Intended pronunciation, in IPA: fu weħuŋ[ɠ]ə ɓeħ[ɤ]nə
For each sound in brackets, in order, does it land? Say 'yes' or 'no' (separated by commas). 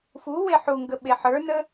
no, no